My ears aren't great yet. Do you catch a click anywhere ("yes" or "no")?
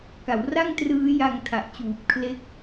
no